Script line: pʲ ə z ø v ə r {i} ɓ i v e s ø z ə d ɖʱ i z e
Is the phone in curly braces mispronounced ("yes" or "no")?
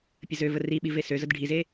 no